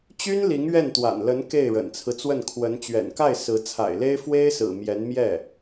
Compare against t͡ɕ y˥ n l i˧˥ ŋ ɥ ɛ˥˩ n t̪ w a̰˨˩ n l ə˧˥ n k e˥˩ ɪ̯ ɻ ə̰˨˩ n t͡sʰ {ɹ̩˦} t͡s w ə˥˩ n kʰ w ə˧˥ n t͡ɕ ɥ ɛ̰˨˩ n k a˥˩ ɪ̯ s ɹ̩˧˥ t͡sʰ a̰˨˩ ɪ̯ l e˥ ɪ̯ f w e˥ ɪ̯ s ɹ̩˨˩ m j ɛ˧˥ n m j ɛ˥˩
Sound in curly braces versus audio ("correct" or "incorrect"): correct